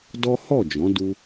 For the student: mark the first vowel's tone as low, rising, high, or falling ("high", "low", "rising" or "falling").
high